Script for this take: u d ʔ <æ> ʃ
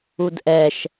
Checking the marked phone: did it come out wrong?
yes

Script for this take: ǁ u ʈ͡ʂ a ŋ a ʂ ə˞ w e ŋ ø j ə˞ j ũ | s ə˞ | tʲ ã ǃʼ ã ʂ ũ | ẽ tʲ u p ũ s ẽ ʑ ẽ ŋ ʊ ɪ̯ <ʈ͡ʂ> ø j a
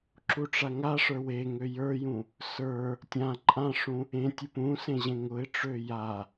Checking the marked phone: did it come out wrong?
no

